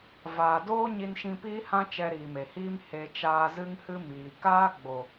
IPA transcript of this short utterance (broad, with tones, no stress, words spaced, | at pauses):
vaː˨doː˦ ɲi˧nʃĩ˧piː˦hã˦ t͡ʃɛ˧ɾiː˨me˨hiː˦m he˧ t͡ʃaː˧zɨ˦ŋhɨ˦miː˨ kaː˦ɡ͡bo˨